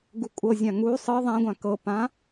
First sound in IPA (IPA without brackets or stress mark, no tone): ɡ